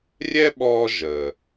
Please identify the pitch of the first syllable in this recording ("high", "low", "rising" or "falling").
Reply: high